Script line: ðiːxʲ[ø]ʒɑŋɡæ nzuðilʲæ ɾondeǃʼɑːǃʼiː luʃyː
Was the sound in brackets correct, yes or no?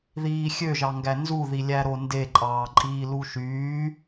yes